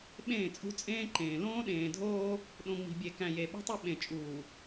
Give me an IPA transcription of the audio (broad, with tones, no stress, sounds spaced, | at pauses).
ɓ ẽː˦˨ t͡sʼ ṳ˦ t͡sʼ ẽː˦ ǃ ẽː˨ l õː˦ ɗ ẽː˨ dʱ oː˦ | ɗ õ˨ ŋ͡m i̤˨ bʲ e˨ k æ̃˨ j e˨ ɓ ṳ˦ tˤ e˦ ɓ ẽ˨ t͡ʃʼ uː˨